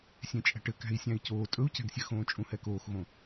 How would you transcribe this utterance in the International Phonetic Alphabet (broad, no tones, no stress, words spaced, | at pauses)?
sʲẽt͡ʃʼæ̤ʈɘ kæ̤i̯sʲæ̃i̯coː tʼɵu̯cæ̤ɡsʲɘxõː t͡ʃʼũhɛkoːxɣõ